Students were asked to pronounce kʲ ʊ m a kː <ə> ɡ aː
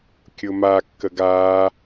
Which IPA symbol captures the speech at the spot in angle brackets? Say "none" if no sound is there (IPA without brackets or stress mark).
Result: ə